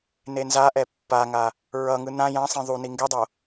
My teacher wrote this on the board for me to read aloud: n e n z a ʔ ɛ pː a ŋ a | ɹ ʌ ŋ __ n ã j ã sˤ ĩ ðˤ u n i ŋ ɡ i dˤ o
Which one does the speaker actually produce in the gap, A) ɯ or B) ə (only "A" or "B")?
A